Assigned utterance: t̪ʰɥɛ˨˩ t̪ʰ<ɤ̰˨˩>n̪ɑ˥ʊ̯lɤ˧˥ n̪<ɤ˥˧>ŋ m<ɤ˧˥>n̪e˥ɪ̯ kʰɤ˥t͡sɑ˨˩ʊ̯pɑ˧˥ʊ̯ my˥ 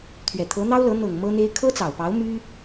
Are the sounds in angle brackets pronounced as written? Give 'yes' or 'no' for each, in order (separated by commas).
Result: no, no, no